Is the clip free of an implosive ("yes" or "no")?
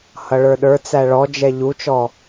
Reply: no